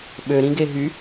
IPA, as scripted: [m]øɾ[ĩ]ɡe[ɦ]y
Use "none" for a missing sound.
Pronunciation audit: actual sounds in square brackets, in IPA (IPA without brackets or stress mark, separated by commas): ɓ, ĩ, ɦ